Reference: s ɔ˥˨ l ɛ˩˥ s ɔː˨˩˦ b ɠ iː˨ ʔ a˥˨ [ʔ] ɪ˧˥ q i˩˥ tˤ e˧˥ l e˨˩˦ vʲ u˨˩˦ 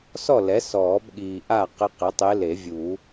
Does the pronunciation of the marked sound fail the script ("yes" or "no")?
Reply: yes